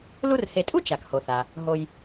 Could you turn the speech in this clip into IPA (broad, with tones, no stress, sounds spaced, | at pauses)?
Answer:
l u˥ r h e˨ tʼ u˥ t͡ʃ a˩ k h o˩ θ a˩ | ɦ o˨ j